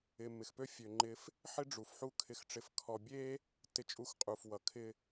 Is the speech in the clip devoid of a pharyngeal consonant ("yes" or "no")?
no